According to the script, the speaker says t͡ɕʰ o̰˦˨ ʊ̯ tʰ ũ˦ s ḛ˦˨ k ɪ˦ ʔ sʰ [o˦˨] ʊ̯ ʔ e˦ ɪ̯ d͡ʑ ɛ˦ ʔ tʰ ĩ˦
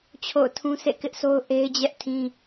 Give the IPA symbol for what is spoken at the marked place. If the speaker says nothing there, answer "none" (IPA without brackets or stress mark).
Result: o˦